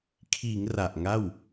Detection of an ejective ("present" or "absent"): absent